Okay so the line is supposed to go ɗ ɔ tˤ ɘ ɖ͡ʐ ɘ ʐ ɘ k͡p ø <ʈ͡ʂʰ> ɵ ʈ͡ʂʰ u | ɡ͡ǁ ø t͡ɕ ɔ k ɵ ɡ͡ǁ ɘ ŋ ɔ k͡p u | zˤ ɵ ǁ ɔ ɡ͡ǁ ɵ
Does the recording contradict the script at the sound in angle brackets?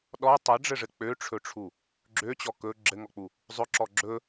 no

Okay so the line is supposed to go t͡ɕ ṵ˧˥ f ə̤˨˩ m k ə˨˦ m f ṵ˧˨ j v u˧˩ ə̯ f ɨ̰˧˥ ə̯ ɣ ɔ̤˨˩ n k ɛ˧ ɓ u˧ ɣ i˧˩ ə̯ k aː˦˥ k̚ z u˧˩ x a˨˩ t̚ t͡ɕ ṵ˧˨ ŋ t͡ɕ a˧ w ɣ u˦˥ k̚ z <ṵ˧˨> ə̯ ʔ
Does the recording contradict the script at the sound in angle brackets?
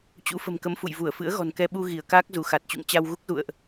no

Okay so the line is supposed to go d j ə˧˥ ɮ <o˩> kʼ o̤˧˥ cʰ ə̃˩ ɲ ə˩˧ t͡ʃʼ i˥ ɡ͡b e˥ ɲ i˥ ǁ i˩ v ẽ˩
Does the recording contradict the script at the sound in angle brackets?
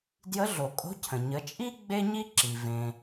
no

